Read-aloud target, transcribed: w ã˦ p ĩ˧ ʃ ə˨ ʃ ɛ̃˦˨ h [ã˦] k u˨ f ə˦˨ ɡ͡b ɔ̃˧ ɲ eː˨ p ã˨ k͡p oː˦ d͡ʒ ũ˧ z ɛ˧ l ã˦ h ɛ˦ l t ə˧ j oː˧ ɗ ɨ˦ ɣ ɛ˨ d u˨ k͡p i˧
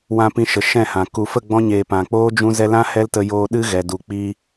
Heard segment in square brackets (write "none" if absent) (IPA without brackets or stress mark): ã˨